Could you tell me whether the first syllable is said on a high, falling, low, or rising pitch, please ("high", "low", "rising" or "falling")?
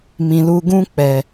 low